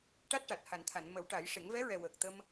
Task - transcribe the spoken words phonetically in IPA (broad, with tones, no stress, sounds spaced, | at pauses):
ʈ a˦˥ t̚ ʈ a˨˩ t̚ h a˨˩˨ n t̪ʰ a˨˩˨ n m ə˨˩˦ w ʈ a˨˩˦ j ʂ e˨˩˦ ŋ v ɛ˧˥ ɹ ɛ˨˩ w əː˨˩ k̚ t̪ ə˧ m